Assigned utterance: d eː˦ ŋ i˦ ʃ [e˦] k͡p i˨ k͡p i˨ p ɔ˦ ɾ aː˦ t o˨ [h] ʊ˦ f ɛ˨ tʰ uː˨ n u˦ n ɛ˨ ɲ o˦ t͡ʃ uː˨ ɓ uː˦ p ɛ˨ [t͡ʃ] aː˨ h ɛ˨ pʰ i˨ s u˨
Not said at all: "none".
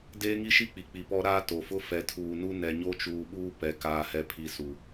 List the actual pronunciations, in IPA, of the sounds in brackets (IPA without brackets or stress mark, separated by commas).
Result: i˦, f, k